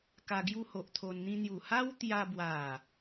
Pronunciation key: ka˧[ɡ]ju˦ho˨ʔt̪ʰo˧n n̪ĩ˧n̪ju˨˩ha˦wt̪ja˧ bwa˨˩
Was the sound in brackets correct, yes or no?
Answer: yes